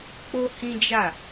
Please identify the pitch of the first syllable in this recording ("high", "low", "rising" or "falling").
high